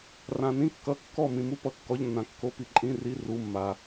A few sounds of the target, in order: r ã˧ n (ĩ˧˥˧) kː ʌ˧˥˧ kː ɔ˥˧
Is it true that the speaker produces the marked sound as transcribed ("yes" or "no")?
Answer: no